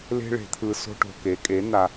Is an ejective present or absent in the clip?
present